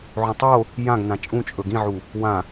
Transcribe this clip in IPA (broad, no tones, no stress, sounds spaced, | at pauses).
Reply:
ʕ õ tˤ o | j ã ɡ n ã t͡ʃʼ ũ t͡ʃʼ ɵ ɡ ĩ ʕ u | w ã